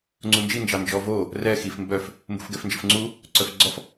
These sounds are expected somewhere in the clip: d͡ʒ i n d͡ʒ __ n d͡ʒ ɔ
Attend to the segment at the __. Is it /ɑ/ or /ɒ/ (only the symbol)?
ɑ